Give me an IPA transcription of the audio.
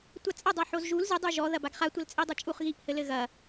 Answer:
tʷ a t͡sʼ ɐ dˤ a ħ o z ʒ u l z ɨ dˤ u ʒ ɔ ð ɐ b a ɡ χ a tʷ ɐ l t͡sʼ i dˤ ɐ t͡ʃʼ u χ ɣ i ʔ h ɘ l ɘ ɣ ɐ

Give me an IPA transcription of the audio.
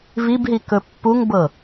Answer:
v i b ɦ i k ɵ pː u ŋ b ɤ

